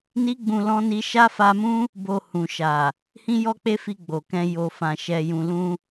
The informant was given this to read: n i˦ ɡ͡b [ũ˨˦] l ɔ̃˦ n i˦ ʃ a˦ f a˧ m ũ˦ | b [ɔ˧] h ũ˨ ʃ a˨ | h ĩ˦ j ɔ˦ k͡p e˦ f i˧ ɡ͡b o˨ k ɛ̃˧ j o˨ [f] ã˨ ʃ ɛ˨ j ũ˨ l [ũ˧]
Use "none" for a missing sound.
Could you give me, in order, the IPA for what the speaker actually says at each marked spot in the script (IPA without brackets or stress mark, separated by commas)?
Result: ũ˧, o˧, f, ũ˧